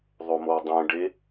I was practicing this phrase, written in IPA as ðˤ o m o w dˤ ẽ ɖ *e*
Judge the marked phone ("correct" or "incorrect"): correct